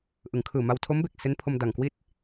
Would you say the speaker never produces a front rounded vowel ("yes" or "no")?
yes